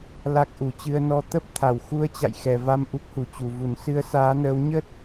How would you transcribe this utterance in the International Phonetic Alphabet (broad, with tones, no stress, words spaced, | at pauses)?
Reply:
la˦˥k̚ ʔu˧˩t͡ɕɨ˧ə̯nɔ˧ t̪ə˦˥p̚ t̪ʰa˧˩wxu˧ə̯t͡ɕa̰˧˨j xɛ˨˩va˧m ʔu˦˥k̚hu˧˩t͡ɕu˨˩ vu˧˩n sɨ˨˦ə̯saː˨˦nəː˨˦w ɲə˦˥t̚